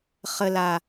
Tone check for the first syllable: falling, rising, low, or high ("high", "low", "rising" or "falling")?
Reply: low